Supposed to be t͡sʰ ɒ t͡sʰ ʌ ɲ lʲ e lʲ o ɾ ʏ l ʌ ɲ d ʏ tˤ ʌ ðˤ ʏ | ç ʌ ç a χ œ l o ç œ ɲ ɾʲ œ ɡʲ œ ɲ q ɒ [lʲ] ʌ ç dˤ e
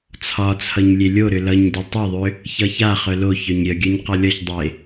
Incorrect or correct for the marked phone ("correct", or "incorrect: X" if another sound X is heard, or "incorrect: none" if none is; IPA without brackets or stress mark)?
correct